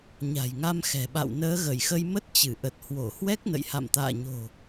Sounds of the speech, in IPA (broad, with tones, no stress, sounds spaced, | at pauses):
ɲ a̤˨˩ j ŋ a˧ m x ɛ̤˨˩ ɓ a̰˧˨ w n əː˨˦ ɣ ə˧˩ j x ə˧ j m ə˦˥ t̚ t͡ɕ ɨ˧˩ ʔ ə˨˩ t̚ h w o˧˩ h w ɛ˦˥ k̚ n ə̰˧˨ j h a̰˧˨ m t̪ a̰ː˧˨ ɲ o̤˨˩